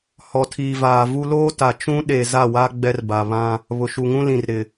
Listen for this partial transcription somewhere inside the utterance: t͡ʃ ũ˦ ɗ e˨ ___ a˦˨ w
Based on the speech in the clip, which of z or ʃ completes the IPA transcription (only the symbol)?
z